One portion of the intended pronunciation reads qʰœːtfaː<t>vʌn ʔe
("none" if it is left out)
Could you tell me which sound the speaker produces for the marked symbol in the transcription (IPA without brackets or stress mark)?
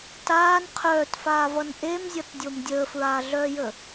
none